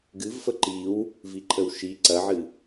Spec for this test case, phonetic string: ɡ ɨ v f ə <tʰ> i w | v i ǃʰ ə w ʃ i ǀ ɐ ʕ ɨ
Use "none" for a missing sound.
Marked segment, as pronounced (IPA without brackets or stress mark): ǃ